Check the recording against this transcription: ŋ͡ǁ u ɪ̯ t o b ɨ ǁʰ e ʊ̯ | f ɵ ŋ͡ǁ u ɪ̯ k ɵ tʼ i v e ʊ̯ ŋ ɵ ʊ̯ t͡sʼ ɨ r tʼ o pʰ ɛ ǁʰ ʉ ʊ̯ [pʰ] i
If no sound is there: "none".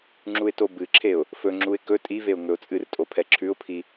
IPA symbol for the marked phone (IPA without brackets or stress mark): pʰ